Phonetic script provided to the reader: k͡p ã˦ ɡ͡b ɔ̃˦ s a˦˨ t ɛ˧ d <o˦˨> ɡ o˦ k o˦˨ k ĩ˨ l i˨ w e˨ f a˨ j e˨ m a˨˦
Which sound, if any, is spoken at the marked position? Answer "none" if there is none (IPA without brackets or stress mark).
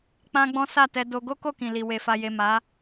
o˧